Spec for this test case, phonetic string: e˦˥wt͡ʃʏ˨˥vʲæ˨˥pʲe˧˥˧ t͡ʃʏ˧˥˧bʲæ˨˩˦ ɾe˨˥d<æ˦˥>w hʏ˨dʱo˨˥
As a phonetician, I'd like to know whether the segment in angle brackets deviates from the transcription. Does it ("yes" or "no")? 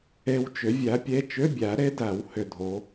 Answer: yes